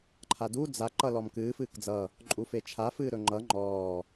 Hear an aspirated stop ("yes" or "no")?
yes